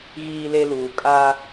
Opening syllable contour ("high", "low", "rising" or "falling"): high